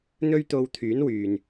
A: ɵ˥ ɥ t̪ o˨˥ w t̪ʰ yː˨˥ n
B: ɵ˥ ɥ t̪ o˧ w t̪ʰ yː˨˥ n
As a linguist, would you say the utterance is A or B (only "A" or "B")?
B